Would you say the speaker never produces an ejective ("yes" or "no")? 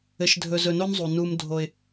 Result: yes